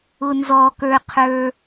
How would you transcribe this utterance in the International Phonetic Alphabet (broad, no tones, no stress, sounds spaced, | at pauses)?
ʊ n z ɔ k ə˞ qʰ ə˞